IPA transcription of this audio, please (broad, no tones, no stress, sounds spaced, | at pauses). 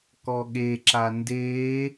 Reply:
k ɔ ɠ e ǁ a n d eː